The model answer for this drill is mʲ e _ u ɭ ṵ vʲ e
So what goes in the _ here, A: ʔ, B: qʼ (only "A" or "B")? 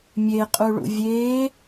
B